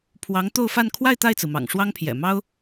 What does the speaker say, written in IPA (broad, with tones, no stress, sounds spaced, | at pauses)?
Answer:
pʰ w ɑ˧˥ ŋ t̪ o˥˧ ʊ̯ f a˥˧ n kʰ w a˥˧ ɪ̯ t̪ a˥˩ ɪ̯ t͡s ɹ̩˩ m ɑ̰˨˩ ŋ ʂ w ɑ˥ ŋ pʰ j ɛ̰˨˩ m ɑ˥ ʊ̯